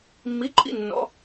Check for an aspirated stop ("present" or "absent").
absent